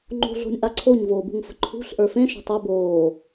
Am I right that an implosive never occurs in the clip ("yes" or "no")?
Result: yes